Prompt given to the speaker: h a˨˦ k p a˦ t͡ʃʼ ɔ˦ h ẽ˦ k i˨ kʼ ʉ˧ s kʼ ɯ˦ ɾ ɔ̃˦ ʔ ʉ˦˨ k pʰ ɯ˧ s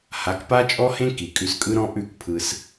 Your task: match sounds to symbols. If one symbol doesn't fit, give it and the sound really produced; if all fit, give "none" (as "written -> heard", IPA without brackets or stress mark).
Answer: none